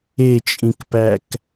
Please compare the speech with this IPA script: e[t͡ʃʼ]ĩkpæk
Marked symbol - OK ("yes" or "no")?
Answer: yes